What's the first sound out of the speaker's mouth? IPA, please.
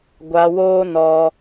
ɡʷ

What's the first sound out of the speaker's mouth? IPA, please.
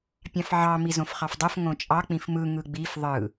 pʲ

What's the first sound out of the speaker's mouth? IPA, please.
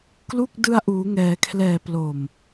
k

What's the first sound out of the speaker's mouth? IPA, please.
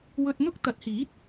w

